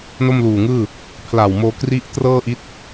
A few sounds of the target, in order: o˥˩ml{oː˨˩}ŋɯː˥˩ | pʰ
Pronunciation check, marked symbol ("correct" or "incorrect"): incorrect